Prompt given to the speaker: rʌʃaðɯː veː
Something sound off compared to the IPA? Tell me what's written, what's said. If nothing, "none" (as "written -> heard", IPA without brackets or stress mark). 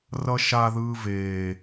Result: none